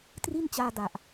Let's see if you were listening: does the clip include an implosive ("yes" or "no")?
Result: no